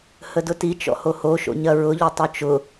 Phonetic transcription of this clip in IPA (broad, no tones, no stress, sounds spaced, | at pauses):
h ə d ʊ t i t͡ʃ ɔ̰ h o h o ʃ o̰ ɲ ɐ ɹ ʊ ʎ o tˤ o t͡ʃ ʊ